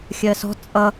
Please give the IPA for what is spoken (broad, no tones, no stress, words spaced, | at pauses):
xʲɜsɔ̤ t͡sʼʌ